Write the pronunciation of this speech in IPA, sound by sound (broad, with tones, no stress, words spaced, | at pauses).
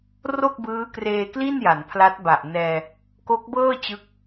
ro˥˩k̚bɯː˦˥kreː˧kli˥˩n ja˩˦npʰla˦˥t̚ba˨˩ʔ nɛː˧ | ko˦˥k̚bɤː˥˩ t͡ɕɯ˦˥k̚